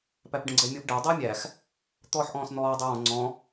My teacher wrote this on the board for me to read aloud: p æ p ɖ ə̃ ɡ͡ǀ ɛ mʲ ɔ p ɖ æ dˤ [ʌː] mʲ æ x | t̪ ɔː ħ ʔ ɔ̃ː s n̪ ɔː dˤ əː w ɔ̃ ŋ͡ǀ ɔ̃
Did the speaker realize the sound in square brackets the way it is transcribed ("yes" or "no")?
no